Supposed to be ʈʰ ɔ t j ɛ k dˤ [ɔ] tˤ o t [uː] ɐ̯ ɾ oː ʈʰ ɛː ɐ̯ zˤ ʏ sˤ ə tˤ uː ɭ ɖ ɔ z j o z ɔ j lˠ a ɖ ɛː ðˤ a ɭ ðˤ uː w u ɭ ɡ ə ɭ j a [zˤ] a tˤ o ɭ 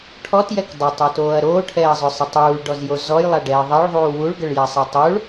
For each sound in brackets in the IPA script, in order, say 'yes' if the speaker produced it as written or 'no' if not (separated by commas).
no, no, no